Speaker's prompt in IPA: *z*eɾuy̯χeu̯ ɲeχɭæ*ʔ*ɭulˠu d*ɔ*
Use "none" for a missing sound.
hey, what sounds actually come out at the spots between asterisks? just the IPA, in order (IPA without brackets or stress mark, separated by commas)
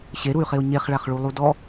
ɕ, χ, ɔ